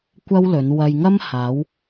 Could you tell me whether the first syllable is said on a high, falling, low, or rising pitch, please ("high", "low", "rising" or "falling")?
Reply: high